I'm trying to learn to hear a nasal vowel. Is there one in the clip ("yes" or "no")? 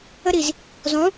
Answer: yes